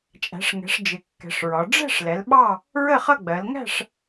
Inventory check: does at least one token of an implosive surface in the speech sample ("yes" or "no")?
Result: yes